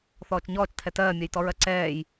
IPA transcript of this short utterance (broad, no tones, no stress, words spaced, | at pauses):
θɔːt͡ʃɲɔːt͡ʃtʰɛ tɜːmʲɜjtɔɹɜ ǀɛːj